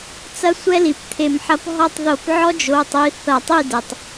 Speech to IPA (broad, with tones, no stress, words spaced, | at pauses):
t͡sɐ˦sʷɛ˦li˩pt̪ʰe˧˩˧m ħɐ˨˦pɦɔ˦˨tˤðo˧˩˧p ʕɔ˦d͡ʒo˩˧˩tˤi˩˧˩ θɐ˧˩˧tˤi˦˨dɛ˩tˤ